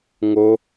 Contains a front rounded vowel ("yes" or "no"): no